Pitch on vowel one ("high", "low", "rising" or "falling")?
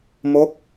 falling